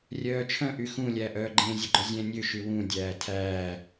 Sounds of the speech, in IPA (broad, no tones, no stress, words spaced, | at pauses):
rʲœːt͡ʃʰœ̃ ʔyxũ lʲæʔœːɡ͡ǃẽ zʲɛɡ͡ǃɵzʲɛ̃ nʲø ʃywũ dʲæːtʰæː